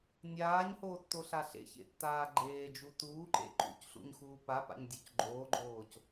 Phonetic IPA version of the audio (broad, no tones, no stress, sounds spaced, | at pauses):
nʲ aː ɲ h oː tː o ɬ a ɬ ḛ ç ḛ tː aː ɡ͡ǃ eː d͡ʒ u t uː ǃ ḛ ǃ ṵ c ɬ ṵ ɲ x uː p a p a̰ ɲ dʲ o c ɡ͡ǃ oː ɡ͡ǃ oː c